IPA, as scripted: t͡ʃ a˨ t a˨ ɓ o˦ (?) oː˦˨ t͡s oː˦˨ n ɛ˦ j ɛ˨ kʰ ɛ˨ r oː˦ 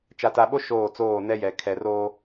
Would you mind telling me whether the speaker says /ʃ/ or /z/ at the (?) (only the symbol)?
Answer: ʃ